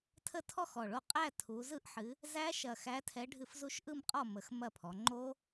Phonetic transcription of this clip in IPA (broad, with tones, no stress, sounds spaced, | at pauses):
tʰ ə˦˥ tʰ ɔ˥˨ x ɔ˧˩ ɭ o˥˨ qʼ æ˥˨ tʰ u˨˦ z ɯ˦˥ ʔ ħ ɨ˨˦ | z æ˦˥ ʃ ɐ˧˩ x æ˨˦ tʰ ɛ˨˦ ɖʱ ɨ˧˩ f z u˦˥ ʃ ʔ ɯ˥˨ m qʼ ɔ˥˨ m ə˨˦ x m ɐ˥˨ pʰ ɔ˨˦ ŋ͡ǃ o˦˥